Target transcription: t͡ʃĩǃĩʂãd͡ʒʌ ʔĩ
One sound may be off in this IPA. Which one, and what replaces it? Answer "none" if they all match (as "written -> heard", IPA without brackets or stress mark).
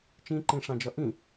none